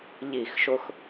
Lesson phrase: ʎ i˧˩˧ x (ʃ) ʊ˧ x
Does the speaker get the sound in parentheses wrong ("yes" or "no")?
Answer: no